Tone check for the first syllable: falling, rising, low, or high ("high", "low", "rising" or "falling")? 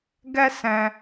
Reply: high